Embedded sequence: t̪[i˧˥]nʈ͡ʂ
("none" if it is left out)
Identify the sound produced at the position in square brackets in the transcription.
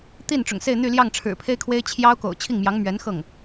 i˥˩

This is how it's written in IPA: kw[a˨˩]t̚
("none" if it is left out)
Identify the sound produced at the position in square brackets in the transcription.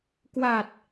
a˨˩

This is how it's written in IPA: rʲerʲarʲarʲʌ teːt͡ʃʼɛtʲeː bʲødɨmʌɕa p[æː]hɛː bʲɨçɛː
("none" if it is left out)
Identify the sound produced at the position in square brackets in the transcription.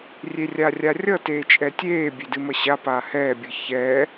aː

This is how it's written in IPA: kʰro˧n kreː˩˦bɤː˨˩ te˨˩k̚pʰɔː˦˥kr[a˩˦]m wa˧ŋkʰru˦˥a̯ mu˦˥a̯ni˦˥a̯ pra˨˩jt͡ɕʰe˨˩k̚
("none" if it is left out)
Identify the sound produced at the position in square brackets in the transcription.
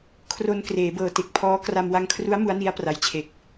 a˧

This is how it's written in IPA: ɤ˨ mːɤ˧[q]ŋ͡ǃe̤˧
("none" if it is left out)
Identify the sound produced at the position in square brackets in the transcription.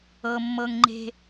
ŋ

